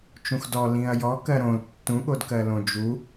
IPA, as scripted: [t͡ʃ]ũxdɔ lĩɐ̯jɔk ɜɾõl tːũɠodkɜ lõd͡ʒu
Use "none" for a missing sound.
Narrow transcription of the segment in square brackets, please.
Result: t͡ʃ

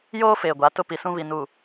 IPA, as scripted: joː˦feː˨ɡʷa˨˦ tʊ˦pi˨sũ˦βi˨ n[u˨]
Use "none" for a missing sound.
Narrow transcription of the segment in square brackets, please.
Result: u˨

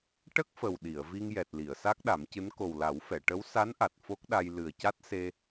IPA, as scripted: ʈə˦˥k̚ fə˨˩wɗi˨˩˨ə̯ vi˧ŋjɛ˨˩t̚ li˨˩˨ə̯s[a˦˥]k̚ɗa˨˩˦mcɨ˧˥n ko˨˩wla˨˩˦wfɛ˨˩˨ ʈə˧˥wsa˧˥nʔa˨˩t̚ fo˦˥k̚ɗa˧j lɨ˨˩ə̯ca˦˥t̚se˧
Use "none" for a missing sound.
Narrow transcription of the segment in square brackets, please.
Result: a˦˥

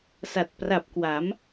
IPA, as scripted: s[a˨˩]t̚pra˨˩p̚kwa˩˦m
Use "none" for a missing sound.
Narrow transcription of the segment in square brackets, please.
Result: a˨˩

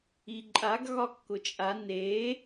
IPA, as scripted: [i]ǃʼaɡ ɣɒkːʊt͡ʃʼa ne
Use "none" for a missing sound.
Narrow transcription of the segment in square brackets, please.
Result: i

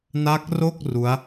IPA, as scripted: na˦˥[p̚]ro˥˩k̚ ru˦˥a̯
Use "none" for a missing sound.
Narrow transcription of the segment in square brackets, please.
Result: k̚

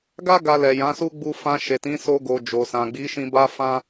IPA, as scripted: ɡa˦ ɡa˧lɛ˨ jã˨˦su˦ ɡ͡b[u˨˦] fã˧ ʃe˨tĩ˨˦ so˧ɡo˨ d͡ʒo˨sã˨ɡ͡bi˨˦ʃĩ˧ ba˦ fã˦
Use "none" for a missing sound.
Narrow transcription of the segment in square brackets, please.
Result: u˧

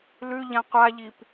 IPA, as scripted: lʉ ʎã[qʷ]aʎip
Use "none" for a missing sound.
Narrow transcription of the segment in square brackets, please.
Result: qʷ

